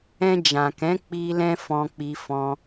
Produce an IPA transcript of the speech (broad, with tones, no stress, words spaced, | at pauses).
ɛ̃˧d͡ʒã˨kɛ̃˨˦ k͡pi˧lɛ̃˧ fɔ̃˧k͡pi˧fɔ̃˧